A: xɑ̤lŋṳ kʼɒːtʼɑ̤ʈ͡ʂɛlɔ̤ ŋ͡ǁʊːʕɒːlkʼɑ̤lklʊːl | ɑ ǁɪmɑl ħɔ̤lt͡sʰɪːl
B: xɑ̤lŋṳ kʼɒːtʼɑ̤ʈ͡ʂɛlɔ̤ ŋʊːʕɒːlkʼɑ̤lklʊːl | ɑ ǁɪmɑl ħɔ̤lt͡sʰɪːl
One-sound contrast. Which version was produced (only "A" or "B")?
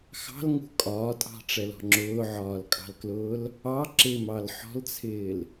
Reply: A